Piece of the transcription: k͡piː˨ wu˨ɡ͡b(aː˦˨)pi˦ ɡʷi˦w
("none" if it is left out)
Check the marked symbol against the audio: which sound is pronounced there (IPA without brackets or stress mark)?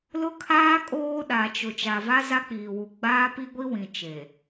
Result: aː˦